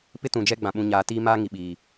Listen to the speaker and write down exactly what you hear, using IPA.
p ɪ˦ t ũ˨ d͡ʒ ɛ˦ ɡ͡b ã˨ ɓ ũ˨ ɲ aː˨ t iː˦ m a˦ ŋ i˨ ɓ iː˨

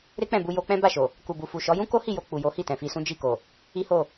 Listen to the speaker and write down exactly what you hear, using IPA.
ɾ e˦ k͡p ɛ̃˦˨ b u˧ j o˧ k͡p ɛ̃˦ b a˦˨ ʃ o˨ | k u˨ b u˨ f u˨ ʃ ɔ˨˦ j ũ˦ k o˦ h i˦˨ j o˧ k͡p u˨ j o˨˦ h i˦˨ t ɛ̃˨ f i˧ s ũ˦ d͡ʒ i˦˨ k o˨ | i˦ h o˦˨

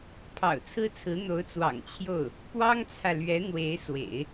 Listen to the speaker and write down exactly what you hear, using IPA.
pʰ ɑ̰˨˩ ʊ̯ t͡sʰ ɹ̩˥ t͡sʰ ɹ̩˧˥ n̪ o˧˥ ʊ̯ t͡s w ɑ̰˨˩ ŋ t͡ɕʰ j o˥˩ ʊ̯ | p w ɑ˥ ŋ t͡sʰ ä˨ l ɥ ɛ˧˥ n̪ w e˧˥ ɪ̯ s w ḛ˨˩˦ ɪ̯

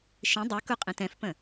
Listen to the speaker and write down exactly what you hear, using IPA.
ʃ ĩ dˤ i k u qʼ ĩ t ɛ̃ f p ə̃

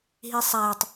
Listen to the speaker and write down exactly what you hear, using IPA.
ɦ i sˤ æ tˤ

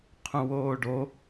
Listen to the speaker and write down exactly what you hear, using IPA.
qʰ ũ w oː ɖ o

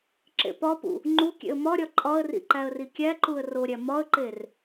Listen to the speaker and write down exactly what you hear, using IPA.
ǁ ḛ p ɒ p ṵ | ŋ͡ǃ u kʲ ḛ ə̯ m ɒ ɾʲ ɒ ǃʼ ɒ ə̯ r ḭ ǃ æ ə̯ r i kʲ æ ǃ u ə̯ r o ɾʲ æ m ɒ ə̯ ǃ e r

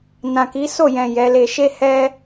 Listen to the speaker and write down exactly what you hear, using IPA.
n ã˨ k i˨˦ s o˦˨ j ɛ̃˨ j ɛ˨˦ l e˧ ʃ e˦ h ɛ˦

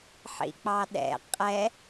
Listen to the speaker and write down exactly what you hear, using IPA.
ħ ḭ k͡p ɑ ɗ ɛ̰ qʼ ɛ

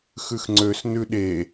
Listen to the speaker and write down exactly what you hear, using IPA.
x ʉ x ŋ͡ǀ ø s n ʉ ɗ e

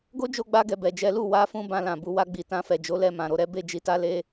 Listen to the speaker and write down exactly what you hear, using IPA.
ɡ o˦ d͡ʒ o˧ ɡ͡b a˧ ɡ ɛ˨ b ɛ˨ d͡ʒ ɛ˨˦ l u˦˨ w a˨˦ f ũ˧ b ã˧ l ã˨ b u˧ w a˧ ɡ͡b i˨ t ã˧ f ɛ˨ d͡ʒ o˨˦ l ɛ˦˨ m ã˨ ɾ o˨˦ ɾ ɛ˦ b e˦˨ d͡ʒ i˧ t a˦ l e˦

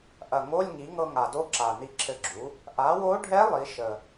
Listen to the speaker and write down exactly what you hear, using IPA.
ʔ ɐ˨˩ ŋ o˧˥˧ lʲ ŋ i˩˥ ŋ ɤ˧ ŋ a˨˩ d o˧˥ ǁ a˨˩ n i˧ ǁʰ ɘ˧ ɡ͡ǁ u˩˥ | ʔ a˩˥ w o˧˥ ɖʱ ɛ˧˥ lˠ i˩˥ ʃ ə˨˩

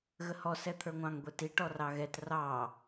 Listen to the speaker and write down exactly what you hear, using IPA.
ɣ ə h ɔ s ɛ t̪ʰ ə˞ ŋʷ ɑ̃ ŋ ɡʷ ɛ t i ʈ ɔ r ɑ ɣ ɛ t r ɑ

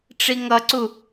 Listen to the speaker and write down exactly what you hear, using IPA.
ʈ͡ʂ i ŋ ʌ ǀ u

